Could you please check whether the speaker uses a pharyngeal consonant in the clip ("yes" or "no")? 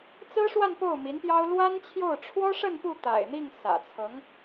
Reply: no